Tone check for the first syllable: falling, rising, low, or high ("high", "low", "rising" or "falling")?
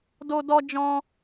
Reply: high